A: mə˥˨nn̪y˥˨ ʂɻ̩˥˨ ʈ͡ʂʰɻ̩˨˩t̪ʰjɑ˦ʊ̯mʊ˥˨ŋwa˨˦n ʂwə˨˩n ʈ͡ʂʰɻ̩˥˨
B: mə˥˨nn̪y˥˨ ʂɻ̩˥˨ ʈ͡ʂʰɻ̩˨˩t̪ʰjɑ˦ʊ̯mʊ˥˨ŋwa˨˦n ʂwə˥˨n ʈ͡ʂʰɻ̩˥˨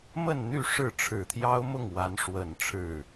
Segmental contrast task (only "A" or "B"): A